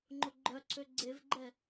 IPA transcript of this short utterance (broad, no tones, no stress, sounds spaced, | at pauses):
ŋ͡ǃ o ɡ͡ǃ œ ǀʰ ø ɡ͡ǀ e v ɡ͡ǃ ɛ